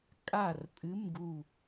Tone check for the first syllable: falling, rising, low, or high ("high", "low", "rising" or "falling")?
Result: falling